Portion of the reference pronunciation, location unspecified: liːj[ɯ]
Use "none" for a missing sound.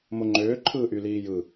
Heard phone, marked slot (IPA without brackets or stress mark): ɯ